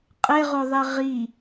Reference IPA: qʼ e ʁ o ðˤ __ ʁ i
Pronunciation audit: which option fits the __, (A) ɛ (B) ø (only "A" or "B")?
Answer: A